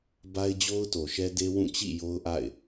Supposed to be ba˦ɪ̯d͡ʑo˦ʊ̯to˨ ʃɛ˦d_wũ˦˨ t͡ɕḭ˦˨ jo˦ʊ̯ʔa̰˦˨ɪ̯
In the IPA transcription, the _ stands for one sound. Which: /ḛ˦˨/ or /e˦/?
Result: e˦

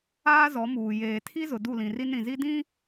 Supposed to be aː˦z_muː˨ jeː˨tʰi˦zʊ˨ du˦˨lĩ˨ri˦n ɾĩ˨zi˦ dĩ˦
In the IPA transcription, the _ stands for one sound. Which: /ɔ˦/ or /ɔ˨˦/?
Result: ɔ˨˦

